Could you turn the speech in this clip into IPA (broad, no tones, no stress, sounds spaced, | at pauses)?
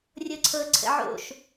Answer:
rʲ ɤ ǀʰ ɤ ǀʰ ə̰ ʕ o̰ ʃ